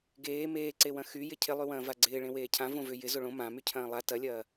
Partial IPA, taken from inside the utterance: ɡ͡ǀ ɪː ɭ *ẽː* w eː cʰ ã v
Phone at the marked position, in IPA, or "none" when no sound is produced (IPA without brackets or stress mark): ẽ